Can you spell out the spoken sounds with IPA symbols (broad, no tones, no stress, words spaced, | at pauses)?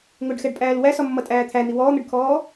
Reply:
ŋʊɖxɛɖpʼæːl wæsɒmːʌtʼæː t̪ʰæn̪i wɔːn̪əɖkʰɔː